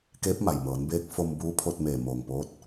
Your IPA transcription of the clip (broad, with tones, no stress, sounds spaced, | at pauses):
k eː˧˥ p̚ m a˩ j m ɤː˩˧ n b eː˧˥ k̚ f o˧ m b uː˧˥ pʰ o˧ t̚ m eː˧˩ m oː˧˩ ŋ p oː˧˥ t̚